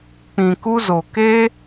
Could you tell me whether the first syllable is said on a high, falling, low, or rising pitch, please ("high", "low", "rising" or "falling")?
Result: low